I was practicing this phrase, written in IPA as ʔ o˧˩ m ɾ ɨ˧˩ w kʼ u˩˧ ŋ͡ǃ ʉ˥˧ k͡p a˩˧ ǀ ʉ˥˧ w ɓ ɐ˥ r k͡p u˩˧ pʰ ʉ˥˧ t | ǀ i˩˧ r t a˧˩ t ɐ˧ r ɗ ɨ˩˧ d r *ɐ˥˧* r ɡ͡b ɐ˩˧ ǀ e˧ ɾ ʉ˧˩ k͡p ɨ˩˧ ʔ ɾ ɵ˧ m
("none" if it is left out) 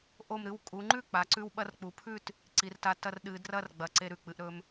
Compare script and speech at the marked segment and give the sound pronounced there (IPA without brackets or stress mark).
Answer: ɐ˥˧